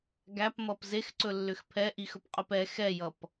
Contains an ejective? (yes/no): yes